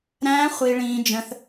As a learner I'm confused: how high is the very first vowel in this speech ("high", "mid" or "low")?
low